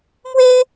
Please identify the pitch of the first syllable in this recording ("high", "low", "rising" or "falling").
high